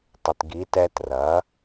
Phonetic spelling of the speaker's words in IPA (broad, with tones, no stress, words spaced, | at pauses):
tˤʏ˨tɡi˨˦tɛ˦ trɐ˨˦